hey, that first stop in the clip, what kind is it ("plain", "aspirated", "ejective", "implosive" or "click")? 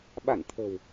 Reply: implosive